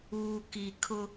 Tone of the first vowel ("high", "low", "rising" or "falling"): low